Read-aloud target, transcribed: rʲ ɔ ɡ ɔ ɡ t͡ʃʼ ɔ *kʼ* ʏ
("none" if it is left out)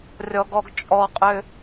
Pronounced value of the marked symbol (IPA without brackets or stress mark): qʼ